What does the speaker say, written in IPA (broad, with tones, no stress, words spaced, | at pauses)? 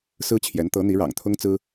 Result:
sɹ̩˥t͡ɕʰjɛ˧˥n t̪ɤ˧˥n̪i˧˥ ɻɑ̰˨˩ŋt̪ʰʊ˥ŋt͡sɹ̩˥